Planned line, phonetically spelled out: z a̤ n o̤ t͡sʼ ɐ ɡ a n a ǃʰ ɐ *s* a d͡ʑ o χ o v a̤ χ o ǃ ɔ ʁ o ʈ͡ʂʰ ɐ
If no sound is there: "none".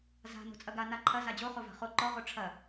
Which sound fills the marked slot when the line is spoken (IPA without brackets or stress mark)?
z